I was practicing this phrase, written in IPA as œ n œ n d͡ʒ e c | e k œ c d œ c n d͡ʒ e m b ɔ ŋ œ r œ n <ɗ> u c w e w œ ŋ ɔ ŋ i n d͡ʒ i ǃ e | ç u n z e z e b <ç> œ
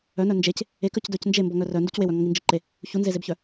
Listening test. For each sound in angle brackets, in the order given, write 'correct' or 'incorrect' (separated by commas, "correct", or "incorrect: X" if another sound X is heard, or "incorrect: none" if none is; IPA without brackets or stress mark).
incorrect: d, correct